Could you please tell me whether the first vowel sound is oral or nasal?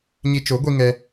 oral